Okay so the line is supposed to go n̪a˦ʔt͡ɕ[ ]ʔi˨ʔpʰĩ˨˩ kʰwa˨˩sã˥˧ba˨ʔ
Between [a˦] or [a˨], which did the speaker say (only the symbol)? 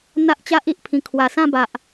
a˦